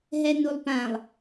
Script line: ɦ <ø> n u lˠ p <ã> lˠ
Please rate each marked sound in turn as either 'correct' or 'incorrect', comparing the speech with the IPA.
incorrect, correct

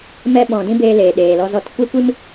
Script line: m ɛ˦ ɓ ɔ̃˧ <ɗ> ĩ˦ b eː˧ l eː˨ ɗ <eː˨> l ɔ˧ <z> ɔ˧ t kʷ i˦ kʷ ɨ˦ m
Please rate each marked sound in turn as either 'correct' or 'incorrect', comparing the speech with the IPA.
incorrect, correct, correct

